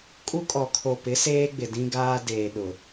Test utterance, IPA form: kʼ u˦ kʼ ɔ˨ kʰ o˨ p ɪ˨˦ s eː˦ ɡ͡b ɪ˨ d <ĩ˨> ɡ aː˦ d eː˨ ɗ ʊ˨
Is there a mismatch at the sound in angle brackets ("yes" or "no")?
yes